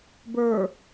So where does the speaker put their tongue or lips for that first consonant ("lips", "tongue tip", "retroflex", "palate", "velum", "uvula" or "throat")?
lips